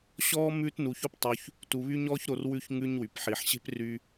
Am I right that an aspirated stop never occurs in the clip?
yes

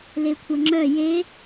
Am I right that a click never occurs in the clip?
no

